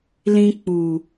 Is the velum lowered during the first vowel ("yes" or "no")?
yes